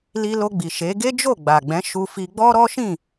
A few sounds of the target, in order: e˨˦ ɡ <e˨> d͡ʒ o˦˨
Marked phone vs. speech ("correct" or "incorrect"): incorrect